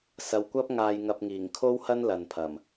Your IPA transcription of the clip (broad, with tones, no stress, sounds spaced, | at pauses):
s ɐ˨ w kʷ ɐ˥ p̚ ŋ aː˧ j ŋ ɐ˧ p̚ ŋ iː˨˩ ŋ kʰ o˥ w h ɐ˥ n l ɐ˨ n pʰ ɐ˨˩ m